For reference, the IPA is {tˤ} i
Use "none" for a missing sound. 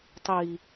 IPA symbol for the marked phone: tˤ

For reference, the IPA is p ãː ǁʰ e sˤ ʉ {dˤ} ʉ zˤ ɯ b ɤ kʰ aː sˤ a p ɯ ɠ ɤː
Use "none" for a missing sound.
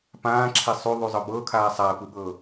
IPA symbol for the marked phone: ðˤ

